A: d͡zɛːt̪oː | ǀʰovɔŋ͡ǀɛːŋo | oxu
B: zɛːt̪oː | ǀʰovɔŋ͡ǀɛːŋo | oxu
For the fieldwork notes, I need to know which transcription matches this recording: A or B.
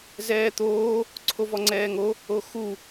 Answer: B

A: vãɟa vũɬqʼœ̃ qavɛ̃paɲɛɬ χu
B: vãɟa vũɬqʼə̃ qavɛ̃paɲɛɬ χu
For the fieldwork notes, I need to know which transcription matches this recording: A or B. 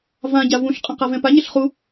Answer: B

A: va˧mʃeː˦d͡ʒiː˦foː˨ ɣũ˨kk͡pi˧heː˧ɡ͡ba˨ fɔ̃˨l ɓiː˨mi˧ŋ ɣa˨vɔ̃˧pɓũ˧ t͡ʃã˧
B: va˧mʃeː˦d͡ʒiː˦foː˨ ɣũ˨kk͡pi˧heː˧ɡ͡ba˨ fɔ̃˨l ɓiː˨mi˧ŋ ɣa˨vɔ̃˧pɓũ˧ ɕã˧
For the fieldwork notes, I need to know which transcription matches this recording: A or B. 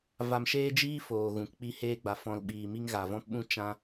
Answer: A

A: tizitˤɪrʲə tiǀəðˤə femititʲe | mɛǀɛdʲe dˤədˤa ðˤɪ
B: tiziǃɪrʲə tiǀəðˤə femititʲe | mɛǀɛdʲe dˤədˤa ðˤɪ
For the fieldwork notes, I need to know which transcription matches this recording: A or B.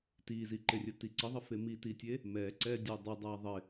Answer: B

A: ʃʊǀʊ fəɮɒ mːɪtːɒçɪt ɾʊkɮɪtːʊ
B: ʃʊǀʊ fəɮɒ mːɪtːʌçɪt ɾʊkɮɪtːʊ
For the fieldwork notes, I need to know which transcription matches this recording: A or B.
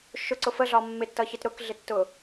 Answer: B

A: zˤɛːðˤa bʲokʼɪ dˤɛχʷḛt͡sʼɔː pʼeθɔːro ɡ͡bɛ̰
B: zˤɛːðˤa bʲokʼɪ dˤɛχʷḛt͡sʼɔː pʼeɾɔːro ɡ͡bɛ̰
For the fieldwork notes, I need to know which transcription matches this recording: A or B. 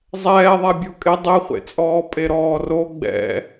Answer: B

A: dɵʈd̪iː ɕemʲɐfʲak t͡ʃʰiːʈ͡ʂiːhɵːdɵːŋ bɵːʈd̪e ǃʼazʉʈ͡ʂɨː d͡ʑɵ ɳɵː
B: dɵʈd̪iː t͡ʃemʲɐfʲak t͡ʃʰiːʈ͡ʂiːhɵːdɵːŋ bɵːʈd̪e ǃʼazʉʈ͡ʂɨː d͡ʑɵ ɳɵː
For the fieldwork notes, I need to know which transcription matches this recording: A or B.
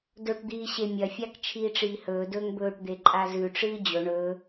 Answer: A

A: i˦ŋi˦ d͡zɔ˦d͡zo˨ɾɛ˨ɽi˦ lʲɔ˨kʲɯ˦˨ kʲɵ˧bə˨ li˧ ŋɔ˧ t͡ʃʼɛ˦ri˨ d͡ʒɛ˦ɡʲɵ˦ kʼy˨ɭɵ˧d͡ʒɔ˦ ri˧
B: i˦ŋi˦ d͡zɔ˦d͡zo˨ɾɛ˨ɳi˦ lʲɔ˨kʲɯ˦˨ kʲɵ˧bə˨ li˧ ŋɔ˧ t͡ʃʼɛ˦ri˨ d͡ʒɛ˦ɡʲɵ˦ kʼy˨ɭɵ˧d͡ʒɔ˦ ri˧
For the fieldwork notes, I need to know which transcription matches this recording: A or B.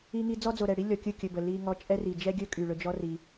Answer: A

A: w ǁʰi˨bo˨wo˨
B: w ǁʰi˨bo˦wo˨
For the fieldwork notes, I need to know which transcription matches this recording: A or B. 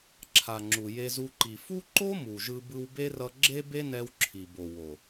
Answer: A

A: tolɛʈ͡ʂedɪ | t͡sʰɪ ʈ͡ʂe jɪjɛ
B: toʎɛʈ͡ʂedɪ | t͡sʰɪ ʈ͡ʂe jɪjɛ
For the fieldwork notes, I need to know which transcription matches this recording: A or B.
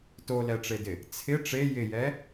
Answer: A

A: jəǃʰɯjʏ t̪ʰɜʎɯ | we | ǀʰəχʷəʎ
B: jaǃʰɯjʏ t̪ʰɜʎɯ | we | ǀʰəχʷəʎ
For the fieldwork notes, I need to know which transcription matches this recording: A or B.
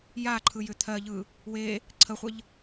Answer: B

